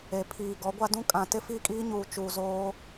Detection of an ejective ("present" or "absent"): present